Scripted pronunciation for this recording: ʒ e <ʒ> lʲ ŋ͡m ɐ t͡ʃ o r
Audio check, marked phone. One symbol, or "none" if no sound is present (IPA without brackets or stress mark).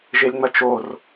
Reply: none